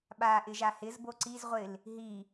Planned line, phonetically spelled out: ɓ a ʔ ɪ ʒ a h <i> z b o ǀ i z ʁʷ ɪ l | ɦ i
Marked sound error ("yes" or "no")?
yes